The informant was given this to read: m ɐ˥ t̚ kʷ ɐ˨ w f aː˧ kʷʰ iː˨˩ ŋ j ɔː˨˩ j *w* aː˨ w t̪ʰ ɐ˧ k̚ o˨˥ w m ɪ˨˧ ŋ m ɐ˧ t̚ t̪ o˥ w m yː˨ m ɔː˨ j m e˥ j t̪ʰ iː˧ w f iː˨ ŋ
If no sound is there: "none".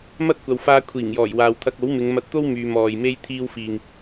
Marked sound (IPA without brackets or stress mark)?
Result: w